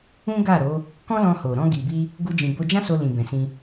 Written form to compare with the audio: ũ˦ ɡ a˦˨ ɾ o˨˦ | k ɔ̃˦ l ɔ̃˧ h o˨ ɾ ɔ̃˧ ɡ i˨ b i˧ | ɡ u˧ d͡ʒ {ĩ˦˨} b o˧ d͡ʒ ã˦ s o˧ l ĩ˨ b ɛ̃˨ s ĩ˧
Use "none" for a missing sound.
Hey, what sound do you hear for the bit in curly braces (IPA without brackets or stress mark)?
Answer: ĩ˨